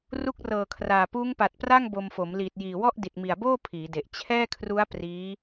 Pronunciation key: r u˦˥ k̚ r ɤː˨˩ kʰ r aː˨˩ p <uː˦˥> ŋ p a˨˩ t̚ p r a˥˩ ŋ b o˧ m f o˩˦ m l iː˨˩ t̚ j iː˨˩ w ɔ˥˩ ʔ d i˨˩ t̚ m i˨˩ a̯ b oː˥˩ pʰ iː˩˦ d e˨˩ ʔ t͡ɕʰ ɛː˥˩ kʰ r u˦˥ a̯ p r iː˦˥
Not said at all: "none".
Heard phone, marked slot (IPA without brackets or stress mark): uː˦˥